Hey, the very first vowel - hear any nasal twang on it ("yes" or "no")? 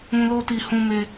yes